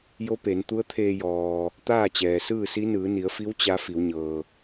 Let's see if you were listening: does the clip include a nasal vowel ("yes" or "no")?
no